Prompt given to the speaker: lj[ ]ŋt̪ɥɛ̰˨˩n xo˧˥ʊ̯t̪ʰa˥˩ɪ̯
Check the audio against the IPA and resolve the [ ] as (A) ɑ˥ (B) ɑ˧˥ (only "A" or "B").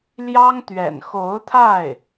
A